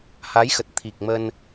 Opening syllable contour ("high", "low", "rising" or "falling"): rising